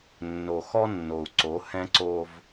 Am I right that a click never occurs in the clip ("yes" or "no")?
no